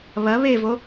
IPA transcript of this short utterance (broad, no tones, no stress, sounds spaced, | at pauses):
β ɐ β e v o